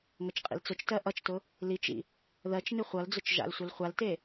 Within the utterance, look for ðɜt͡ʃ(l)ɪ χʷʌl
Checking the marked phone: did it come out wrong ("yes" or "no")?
yes